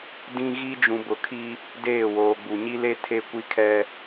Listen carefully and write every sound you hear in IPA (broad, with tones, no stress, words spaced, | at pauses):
dĩ˦ɣi˦ d͡ʒũ˨bʊ˨kʰi˦ | deː˦˨woː˨ɡ͡bu˨ ɲi˦le˦ tʰe˦kʷi˦kʰɛ˦